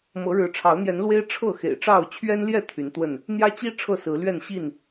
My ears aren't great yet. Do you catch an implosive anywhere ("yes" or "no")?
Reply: no